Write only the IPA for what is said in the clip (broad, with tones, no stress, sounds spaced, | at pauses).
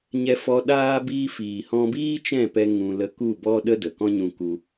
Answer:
ɲ ɛ˧ f ɔ˧ ɗ aː˦ b iː˧ f iː˨ h ɔ̃˧ b iː˦ t͡ʃ ɛ̃˦˨ p ɛ˧ ŋ ũ˧ l ə˧ k u˦˨ b ɔ˦ ɗ ə˦ d ə˨ k ɔ̃˦ ɲ ũ˧ k u˧